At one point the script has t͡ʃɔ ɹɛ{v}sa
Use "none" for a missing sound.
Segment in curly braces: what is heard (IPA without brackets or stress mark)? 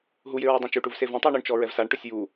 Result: v